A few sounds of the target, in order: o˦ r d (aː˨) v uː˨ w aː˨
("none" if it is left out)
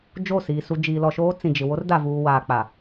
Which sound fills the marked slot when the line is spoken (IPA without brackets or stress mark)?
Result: a˨